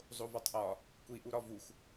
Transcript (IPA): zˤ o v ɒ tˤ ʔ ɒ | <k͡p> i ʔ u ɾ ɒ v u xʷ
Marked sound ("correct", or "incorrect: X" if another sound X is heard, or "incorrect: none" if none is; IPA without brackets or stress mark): incorrect: kʷ